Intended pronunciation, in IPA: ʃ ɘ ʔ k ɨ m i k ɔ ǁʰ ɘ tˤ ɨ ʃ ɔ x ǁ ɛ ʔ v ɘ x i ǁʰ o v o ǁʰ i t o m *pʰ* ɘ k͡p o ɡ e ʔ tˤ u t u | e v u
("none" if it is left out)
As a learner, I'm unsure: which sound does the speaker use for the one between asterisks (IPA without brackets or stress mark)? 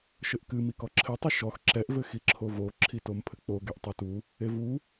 pʰ